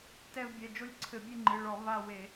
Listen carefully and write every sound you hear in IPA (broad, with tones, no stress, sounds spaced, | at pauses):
t ɛ˦˨ v bʲ ɛ˩˧˩ d͡ʒ o˦˨ lʲ ǀʰ ɘ˧˩˧ bʲ ɨ˦˨ ŋ͡ǃ ɨ˩˧˩ ɭ ɔ˧˩˧ v a˦˨ w e˧˩˧